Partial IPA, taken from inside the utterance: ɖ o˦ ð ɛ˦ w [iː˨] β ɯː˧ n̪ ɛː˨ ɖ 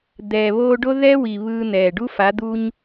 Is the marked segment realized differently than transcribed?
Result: no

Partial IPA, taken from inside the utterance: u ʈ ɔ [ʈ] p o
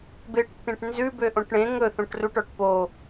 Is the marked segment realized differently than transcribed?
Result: no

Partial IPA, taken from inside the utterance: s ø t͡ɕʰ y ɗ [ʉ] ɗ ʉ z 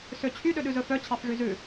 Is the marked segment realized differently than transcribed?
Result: yes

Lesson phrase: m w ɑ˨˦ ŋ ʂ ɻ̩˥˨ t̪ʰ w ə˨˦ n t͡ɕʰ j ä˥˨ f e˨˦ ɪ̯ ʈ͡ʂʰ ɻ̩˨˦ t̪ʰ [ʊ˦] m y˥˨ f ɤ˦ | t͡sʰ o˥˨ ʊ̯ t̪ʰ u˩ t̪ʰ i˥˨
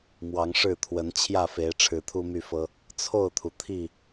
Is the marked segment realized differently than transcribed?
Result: yes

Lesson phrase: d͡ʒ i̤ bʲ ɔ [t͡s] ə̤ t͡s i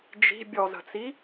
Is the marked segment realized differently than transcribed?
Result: yes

